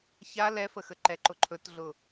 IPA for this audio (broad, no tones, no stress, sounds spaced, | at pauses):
ç a l ɛ f ə x ə ǃ ɛ ǃ ʊ ǃʰ ɵ t ɮ ʊ